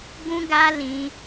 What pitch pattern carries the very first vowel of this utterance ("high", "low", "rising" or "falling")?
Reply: high